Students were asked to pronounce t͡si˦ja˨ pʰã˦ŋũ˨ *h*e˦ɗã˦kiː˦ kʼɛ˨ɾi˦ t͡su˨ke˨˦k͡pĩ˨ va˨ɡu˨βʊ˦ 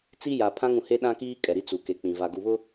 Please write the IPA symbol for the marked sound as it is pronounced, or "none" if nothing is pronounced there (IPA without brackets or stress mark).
h